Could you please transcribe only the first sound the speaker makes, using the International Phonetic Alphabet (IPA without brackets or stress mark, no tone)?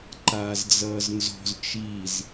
ǃ